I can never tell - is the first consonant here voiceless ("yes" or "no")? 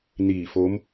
no